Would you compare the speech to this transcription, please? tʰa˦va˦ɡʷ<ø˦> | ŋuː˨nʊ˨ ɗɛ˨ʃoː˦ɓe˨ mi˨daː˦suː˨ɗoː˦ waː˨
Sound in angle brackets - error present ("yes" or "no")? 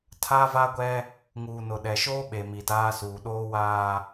yes